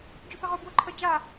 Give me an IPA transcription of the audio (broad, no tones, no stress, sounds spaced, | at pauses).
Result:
d͡ʑ o p ɪ ʁ o b w ʊ ǃʰ ə d͡ʑ a